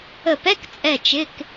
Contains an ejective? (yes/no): yes